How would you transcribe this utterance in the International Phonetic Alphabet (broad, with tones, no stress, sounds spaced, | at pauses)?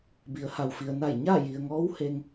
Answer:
b i˩˧ ə̯ h a˩ w f i˩ ə̯ n a˧˩ j ɲ aː˥˨ j i˩ ə̯ ŋ ɔː˧˥ w h e˧ ŋ